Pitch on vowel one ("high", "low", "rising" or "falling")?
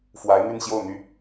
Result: rising